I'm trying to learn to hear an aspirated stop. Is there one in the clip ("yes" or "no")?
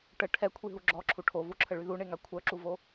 yes